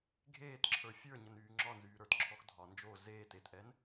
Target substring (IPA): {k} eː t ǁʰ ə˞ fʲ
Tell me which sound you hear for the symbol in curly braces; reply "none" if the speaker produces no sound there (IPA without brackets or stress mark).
ɡʱ